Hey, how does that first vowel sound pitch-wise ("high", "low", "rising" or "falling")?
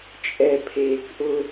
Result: low